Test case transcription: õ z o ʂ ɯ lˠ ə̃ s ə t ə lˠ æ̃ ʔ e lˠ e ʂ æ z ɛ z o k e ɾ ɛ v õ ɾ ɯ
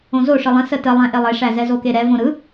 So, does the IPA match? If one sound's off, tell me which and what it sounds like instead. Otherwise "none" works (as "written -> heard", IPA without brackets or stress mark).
none